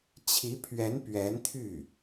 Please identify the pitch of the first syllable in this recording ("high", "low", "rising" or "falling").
rising